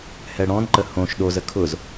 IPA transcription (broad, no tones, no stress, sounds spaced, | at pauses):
h ɛ ɽ ɔ̃ n ǃ ə h õ ʃ ɗ o z ə kʰ ʊ z